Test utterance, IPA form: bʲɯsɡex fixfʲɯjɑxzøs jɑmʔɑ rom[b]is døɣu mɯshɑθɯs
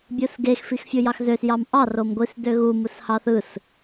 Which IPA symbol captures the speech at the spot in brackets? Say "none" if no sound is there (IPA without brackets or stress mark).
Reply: ɡʷ